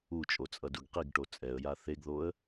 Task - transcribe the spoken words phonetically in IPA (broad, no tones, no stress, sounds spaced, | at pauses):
u t͡ʃʼ o t͡sʼ ʌ d u ɡ q i ɡ ʈ o t͡sʼ ɛ ə̯ j a θ e ɡ ð o ə̯